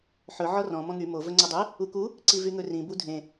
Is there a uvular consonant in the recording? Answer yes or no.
no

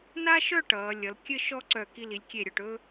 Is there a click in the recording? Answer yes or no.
yes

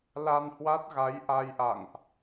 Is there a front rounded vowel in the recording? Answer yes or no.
no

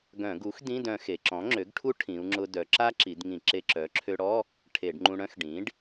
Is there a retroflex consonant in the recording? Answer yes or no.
yes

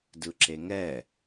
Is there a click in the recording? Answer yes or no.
yes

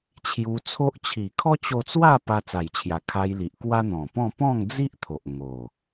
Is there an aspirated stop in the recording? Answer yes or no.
yes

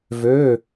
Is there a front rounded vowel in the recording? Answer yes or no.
yes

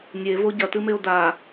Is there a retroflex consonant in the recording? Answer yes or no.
no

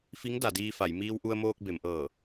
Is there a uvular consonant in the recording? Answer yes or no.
no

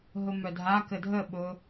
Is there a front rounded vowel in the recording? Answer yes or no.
yes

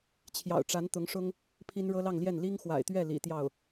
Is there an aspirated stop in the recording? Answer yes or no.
yes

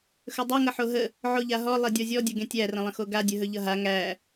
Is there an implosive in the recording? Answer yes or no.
no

